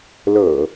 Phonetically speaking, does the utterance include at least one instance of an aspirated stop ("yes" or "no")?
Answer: no